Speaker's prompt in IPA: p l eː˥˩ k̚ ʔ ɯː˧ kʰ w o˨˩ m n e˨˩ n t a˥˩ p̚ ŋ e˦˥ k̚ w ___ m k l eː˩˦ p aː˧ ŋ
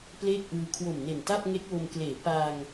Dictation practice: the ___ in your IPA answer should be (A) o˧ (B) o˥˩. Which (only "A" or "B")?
A